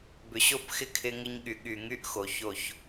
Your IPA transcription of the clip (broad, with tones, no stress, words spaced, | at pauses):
bʏ˨ɕo˦˨pxɪ˦˨ kʰɪ˦ŋɪ˦ɲ ɠy˨ ɠy˨ŋy˦ʔ xo˨ço˦˨ç